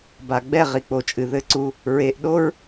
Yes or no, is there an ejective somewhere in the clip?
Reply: yes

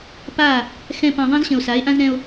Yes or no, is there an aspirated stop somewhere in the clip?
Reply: no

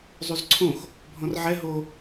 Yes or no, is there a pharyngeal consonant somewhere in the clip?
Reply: yes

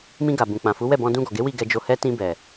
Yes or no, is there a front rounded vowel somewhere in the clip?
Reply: no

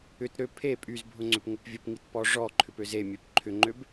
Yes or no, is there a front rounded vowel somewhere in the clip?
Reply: yes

